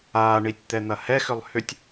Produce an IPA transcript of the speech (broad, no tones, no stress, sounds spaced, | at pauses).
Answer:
aː ɳ i tʲ t̪ ɛ n̪ ɐ h ɛ x ʏ lˠ h ʏ tʲ